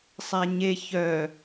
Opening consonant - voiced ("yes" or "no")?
no